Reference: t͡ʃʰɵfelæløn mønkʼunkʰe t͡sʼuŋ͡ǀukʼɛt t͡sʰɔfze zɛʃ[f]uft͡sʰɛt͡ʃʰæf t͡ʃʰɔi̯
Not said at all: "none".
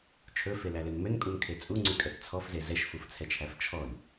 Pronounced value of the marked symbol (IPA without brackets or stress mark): f